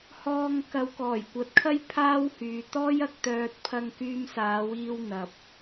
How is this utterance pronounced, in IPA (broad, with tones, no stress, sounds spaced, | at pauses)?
h ɔː˨ ŋ k ɐ˨˧ w k ɔː˨˩ j kʷ ɐ˨˥ t̚ kʰ ɐ˥ j pʰ aː˥ w h yː˨ t̪ ɔː˥ j ɐ˨ k̚ t̪ œː˧ t̚ pʰ ɐ˧ ŋ k yː˧ m s aː˨˧ w iː˧ w n̪ ɐ˨ p̚